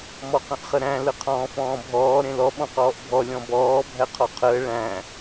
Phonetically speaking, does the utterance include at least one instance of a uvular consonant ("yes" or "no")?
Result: yes